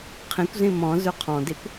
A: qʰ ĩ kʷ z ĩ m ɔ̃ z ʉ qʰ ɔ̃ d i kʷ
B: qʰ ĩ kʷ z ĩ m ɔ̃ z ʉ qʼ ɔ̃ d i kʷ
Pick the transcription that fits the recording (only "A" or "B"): A